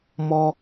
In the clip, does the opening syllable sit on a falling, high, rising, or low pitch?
high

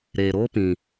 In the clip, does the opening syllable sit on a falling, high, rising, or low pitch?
low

